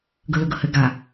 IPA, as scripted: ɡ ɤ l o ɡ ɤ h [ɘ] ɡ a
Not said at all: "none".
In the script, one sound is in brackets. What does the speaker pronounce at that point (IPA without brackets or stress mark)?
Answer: ɘ